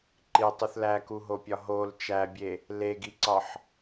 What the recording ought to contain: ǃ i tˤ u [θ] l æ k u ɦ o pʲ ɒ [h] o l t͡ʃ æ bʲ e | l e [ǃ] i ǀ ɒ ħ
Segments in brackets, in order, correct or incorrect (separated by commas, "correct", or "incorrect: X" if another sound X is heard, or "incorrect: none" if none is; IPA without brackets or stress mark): correct, incorrect: ɦ, incorrect: ɡ